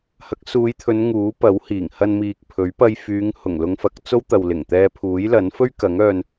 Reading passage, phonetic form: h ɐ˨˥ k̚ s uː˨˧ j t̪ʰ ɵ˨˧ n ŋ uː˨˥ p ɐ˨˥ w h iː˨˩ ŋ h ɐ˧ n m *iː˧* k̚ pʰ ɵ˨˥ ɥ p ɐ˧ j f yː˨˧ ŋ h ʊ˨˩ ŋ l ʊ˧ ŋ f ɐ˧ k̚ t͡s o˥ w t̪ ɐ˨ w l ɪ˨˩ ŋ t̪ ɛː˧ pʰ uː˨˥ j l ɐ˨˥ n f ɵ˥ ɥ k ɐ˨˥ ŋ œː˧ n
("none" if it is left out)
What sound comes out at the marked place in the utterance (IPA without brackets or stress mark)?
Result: iː˨